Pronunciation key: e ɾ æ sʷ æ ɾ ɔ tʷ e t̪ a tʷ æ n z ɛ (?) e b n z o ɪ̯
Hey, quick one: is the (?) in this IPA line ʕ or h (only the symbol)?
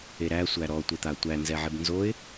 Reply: ʕ